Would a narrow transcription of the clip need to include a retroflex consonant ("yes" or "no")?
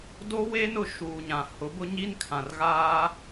no